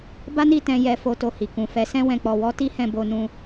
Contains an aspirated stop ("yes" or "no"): no